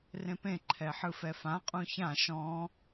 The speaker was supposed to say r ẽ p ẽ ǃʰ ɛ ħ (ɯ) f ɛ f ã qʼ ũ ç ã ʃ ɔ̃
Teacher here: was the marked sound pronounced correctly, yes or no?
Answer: yes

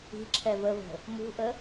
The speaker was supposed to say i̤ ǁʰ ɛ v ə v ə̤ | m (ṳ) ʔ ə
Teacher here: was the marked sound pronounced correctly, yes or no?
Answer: yes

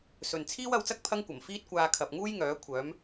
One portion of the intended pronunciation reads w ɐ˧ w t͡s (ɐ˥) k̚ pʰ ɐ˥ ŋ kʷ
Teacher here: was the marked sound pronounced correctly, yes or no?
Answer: yes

